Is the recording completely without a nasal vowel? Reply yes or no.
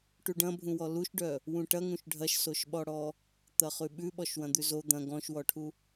no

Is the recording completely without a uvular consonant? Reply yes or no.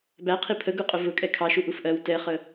no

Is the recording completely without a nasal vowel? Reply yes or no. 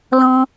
no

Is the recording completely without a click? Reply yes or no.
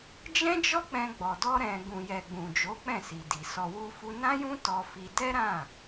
yes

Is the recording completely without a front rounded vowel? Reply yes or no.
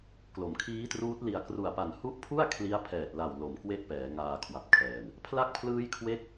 yes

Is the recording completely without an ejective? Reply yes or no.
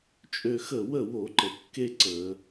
no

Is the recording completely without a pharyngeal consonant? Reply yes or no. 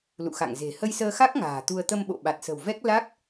yes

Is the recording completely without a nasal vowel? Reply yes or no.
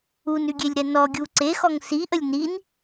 yes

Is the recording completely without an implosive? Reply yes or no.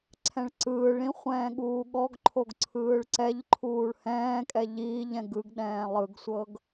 no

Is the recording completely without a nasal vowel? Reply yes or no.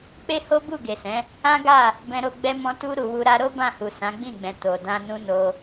no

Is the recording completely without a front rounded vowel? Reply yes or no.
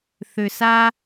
no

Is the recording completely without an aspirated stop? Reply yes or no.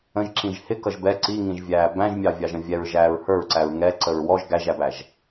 yes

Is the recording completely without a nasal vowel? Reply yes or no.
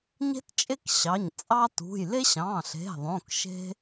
no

